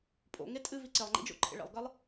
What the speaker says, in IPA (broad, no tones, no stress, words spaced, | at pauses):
pʼo̰ŋetʼɨ viǀelˠŋ͡ǃḭd͡ʒo̰ ǃʰḛɭḛlˠɡɐlˠ